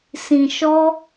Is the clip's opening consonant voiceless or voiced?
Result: voiceless